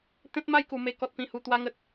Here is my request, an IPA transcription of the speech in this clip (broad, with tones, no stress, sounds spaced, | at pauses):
t̪ ẽ˦ t̚ m a˥˧ j k u˨˩ m e˧ k ɔ˨ t̚ p ĩ˨˩ h u˨˩ t̪ w a˧ ŋ ə˨ t̚